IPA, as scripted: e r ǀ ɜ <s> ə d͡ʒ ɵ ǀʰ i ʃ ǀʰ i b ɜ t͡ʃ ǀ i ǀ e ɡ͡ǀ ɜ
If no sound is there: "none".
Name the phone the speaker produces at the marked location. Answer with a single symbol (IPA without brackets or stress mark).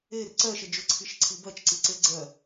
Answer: ʃ